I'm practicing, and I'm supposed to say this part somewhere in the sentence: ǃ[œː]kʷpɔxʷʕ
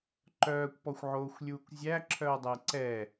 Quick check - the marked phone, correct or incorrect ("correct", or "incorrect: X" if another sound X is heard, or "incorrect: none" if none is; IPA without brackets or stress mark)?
correct